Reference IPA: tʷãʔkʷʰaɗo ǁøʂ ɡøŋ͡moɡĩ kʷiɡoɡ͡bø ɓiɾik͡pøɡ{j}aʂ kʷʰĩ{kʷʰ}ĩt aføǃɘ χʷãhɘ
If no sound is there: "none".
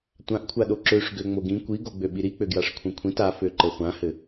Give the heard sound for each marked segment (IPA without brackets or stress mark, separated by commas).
j, kʷʰ